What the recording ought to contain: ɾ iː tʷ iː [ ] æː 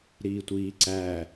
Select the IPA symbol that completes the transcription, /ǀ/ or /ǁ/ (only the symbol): ǀ